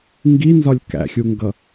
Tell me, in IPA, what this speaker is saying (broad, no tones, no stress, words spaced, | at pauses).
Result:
ŋɡinzɒlʲ kæ̰xʲuŋɡʌ